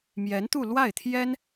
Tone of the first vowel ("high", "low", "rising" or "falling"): rising